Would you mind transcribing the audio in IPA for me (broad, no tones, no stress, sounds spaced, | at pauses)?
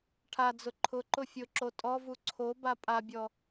ʈʰ a d͡z ʊ ǃʰ ʊ ǃ ʊ fʲ ʊ ǁ o tʼ ɔ v u ǀʰ o b a pʼ a bʲ ɔ